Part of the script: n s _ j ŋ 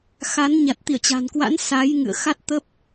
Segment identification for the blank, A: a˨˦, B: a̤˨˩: A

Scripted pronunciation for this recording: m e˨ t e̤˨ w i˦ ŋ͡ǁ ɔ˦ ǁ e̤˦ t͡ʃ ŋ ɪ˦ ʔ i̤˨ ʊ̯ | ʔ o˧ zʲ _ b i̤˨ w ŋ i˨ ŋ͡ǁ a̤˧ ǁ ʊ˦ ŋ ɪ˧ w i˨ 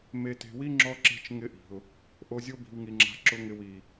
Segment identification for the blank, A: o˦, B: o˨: A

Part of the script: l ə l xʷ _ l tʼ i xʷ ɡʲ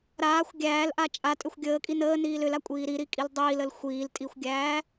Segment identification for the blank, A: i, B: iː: B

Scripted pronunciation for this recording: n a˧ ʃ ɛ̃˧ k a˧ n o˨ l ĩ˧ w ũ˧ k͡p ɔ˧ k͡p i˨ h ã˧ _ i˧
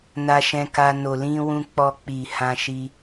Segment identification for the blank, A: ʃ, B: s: A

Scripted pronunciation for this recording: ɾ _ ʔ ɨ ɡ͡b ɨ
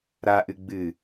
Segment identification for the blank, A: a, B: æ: A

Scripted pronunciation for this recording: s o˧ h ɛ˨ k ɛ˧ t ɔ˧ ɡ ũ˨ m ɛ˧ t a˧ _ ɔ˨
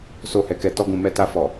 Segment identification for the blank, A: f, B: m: A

